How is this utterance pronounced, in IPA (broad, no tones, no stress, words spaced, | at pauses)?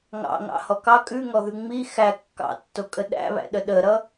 ŋɑ̰ŋɑ̰hɔ kɑ kʼʉŋɔðʉ ŋ͡mi xæ kːɑ̰tːokʼə ɗæ̰βæ̰ɗə ɗəɾʌ